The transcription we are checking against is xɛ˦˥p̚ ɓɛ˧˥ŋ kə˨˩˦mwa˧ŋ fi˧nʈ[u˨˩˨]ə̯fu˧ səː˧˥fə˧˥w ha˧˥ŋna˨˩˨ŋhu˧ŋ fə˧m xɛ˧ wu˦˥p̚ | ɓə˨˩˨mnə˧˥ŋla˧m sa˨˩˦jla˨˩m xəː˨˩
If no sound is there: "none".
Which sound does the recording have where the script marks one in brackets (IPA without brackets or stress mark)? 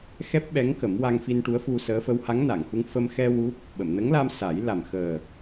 u˧˥